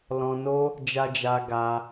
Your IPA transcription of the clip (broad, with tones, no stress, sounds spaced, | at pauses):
l ɔ̃˧ n o˦ | d͡ʒ a˧ d͡ʒ a˧ ɡ a˧